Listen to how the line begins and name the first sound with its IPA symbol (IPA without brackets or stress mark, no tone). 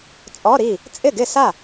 t͡sʼ